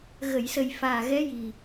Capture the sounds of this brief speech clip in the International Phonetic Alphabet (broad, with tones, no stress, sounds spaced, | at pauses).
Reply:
ɣ ə˨˩˨ j s ə˨˩ j f aː˨˩ ɣ ɛ˧˥ j i˨˩